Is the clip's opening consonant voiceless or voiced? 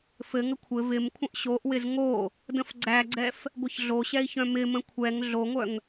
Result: voiceless